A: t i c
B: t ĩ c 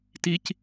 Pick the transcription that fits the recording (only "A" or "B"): A